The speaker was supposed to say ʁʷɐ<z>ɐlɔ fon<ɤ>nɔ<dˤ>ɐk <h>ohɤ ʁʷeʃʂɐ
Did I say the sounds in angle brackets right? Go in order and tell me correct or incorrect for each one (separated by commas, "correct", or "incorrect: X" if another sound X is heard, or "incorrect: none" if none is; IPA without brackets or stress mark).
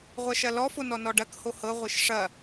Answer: incorrect: ʃ, incorrect: ɔ, incorrect: ɖ, correct